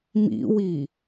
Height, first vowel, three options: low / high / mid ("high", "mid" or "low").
high